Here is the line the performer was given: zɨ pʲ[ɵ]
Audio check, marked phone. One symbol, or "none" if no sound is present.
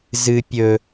ɵ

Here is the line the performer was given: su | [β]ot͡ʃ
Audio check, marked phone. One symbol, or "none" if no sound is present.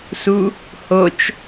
h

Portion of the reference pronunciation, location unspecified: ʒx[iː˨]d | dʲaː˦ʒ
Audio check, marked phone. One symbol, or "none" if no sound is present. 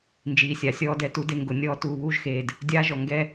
eː˨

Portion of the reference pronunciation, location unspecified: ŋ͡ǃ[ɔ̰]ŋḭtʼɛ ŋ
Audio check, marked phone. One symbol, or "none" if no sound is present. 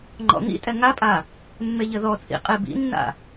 ɔ̰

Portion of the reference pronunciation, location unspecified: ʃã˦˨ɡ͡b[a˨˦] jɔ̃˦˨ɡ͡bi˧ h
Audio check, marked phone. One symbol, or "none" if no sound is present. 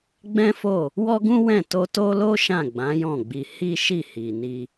ã˨˦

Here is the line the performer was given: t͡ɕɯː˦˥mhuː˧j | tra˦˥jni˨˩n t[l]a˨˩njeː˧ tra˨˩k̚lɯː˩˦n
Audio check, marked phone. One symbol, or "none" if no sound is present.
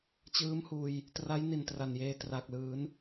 r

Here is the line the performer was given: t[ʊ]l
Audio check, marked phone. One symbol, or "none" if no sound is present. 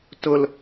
ʊ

